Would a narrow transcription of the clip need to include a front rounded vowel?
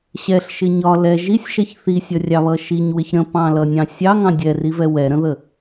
no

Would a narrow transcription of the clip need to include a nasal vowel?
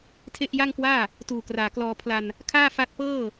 no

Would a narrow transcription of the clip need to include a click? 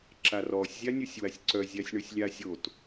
yes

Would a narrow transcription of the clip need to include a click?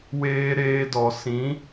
no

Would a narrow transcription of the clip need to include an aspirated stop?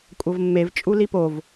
no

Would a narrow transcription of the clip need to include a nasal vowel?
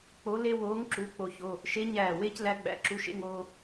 no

